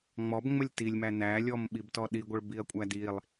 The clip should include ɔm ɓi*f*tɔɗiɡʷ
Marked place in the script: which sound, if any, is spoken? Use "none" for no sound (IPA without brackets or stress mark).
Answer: b